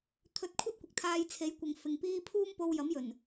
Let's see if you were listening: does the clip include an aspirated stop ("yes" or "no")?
yes